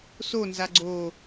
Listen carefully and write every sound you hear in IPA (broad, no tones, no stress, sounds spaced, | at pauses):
s o n z a ɡ͡ǀ o